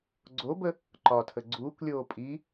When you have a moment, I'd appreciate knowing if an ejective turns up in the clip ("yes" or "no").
yes